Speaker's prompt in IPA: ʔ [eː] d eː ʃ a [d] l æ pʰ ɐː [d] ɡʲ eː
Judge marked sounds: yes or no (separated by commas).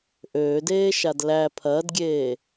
no, yes, yes